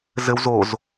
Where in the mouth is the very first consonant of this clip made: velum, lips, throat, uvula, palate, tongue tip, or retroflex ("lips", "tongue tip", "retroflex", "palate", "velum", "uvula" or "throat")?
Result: tongue tip